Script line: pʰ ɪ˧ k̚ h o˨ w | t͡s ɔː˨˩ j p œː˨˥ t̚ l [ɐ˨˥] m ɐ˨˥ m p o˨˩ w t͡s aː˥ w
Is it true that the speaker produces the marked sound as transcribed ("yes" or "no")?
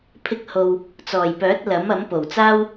yes